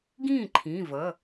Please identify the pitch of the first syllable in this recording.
falling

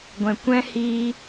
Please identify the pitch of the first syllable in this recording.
low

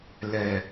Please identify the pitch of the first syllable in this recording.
low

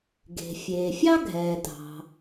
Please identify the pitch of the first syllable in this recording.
low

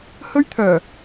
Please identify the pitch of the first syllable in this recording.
high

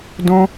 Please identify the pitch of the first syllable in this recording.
high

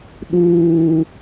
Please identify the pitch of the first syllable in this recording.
low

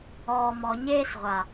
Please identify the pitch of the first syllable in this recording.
low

